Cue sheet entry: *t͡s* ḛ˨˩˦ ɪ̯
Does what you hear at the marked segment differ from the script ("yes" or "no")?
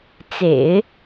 no